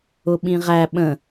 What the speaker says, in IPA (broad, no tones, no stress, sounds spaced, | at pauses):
ʊ ɓ ĩ ʁ æ ɓ ə̃